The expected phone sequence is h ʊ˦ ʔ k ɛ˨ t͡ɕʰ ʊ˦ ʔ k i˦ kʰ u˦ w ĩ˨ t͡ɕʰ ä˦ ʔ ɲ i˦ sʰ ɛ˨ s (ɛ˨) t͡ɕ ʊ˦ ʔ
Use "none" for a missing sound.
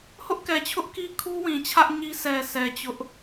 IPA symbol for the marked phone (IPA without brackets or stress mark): ɛ˨